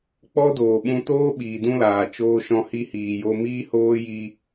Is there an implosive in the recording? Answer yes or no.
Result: yes